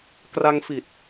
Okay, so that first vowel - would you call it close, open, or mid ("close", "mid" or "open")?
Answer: open